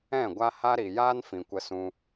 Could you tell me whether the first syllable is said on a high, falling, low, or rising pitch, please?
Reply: falling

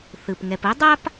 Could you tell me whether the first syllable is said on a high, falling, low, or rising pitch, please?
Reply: low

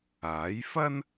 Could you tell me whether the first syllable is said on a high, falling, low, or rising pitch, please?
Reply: rising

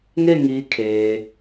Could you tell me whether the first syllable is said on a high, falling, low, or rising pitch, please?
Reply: falling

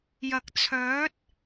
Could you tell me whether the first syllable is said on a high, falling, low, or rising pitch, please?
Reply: low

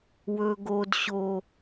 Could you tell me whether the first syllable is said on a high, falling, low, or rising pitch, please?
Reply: low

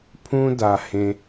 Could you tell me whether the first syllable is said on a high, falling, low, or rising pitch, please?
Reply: high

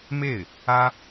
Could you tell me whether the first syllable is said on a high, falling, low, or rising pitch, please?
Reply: falling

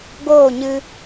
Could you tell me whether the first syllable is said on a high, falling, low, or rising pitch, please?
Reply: falling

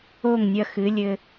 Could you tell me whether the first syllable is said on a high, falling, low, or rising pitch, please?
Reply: falling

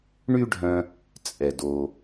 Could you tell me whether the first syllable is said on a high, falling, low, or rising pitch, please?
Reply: high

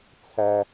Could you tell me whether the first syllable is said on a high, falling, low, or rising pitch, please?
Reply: high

